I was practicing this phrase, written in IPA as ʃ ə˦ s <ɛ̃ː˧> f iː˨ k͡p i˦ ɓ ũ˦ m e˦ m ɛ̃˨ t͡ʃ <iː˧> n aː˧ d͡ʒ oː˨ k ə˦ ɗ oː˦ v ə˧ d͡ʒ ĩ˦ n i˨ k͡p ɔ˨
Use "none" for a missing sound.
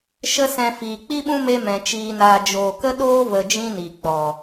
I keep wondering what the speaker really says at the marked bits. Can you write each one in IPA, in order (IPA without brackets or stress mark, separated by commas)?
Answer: ɛ̃˧, iː˧